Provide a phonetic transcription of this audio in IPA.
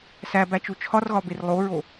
s æ b æ t͡ʃ u t͡ʃʰ ɒ r ɣ ɒ b e r lˠ o ɹ o

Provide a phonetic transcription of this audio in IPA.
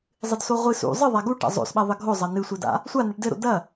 zˤ ɨ d s o ʁʷ ɨ s ṵ zˤ ɨ ðˤ a ɡ u ʈ a̰ zˤ o̰ s ɓ ɐ ðˤ ɘ ɡʱ o zˤ ɐ n ɨ sʷ ɘ d a̰ | sʷ a n ɘ ʈ d ɘ ɾ o̰ d ɐ

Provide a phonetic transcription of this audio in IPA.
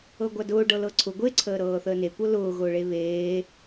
ɤ ɡʷ a d ʊː ɖ ɤ l ɤ ǀʰ ʊ ɡʷ e ǀʰ əː ɾ ɤː θ əː n e kʷ ɤ l ʊː ɣ ʊː ɭ e β eː

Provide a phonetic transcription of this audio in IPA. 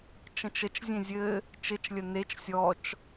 t͡ʃ ə̃ t͡ʃ ə t͡ʃ zʲ ẽ zʲ ɘ | t͡ʃ ɘ t͡ʃ lʲ ə n e t͡ʃ sʲ ɔ t͡ʃ

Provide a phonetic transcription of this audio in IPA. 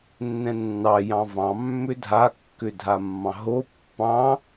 nː ɛ̃ nː ɑ j ɑ̃ v ɑ̃ mː ʏ dʱ a kː ʏ dʱ a mː ɑ̃ ɦ o pː ɑ̃

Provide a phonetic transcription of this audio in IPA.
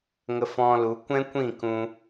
ŋ ə˧ f ɔ̃˧ l u˨˦ kʷ ɛ̃˦ kʷ ĩ˦˨ k ũ˧

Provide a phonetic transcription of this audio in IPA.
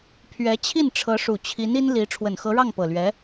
pʰ ɥ ɛ˧˥ t͡ɕʰ i˥˩ n ʈ͡ʂʰ ɤ˧˥ ʂ u˨˩ t͡ɕʰ i˧˥ n i˥ n l i˧˥ ʈ͡ʂʰ w ə˨˩ n x ɤ˧˥ ɻ ɑ˥˩ ŋ p ɤ˨˩ l ɥ ɛ˧˥

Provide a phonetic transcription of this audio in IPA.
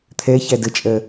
t̪ʰ ɛ ç æ d ə t͡ʃʼ ɜ

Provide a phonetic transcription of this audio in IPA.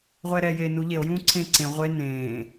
ʁʷ ɛː ɾ ɛː j eː n u ʎ e o̯ j ũː ǀʰ ẽː ǀ ẽ ʁʷ e n ẽː

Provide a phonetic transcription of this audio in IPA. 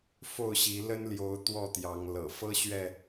f o˥˨ ʊ̯ ɕ i˨˦ l ə˦ n l j o˨˦ ʊ̯ t̪ w ɔ˥˨ t̪ j ɑ˨˦ ŋ l ɤ̰˨˩ f ɤ˦ ɕ ɥ ɛ˥˨

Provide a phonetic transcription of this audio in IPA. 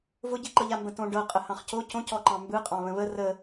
v ʊ ɟ i ǃ ɤ ʎ a m b ə̃ t õ ɖ ɤ qʼ ə h ɑ̃ χ c o c õ c ɔ ǃ ɑ̃ m b ɯ qʼ ɑ̃ β ə̃ β ə r ə

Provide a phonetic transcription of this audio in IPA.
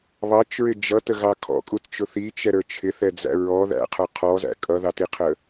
β ɑ t͡ʃ ɹ ɪ d͡ʒ ʌ t ə ɣ ɑ kʰ ɔ̰ kʼ u t t͡ʃ ʊ θ i t͡ʃ ɛ ɾ ə˞ t͡ʃʰ ɪ θ ɛ d͡z æ̰ ɹ ɔ ð æ̰ qʰ ə˞ qʰ ɔ z æ̰ kʼ ʌ ð ɑ t i qʰ ə

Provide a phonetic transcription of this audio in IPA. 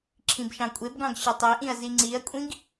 ǁʰ ĩ b ʃ ɑ̃ kʷʼ e b ɡ ɑ̃ ɡ ɕ ɵ tˤ e ʔ ĩ ɐ̯ z i ŋ͡ǀ i ɐ̯ kʷʼ ĩ ɡ

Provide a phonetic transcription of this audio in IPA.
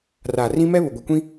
r aː˨ r ĩ˦ m ɛ˦ β ʊ˨ ɡʷ e˨ kʷ ĩ˦

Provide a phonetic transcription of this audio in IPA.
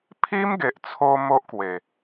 pʰ i˦ m ɡ e˨ ʔ t͡sʰ o˦ m o˦ ʔ k w e˨˩

